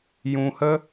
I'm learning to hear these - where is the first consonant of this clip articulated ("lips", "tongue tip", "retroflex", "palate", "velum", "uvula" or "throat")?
palate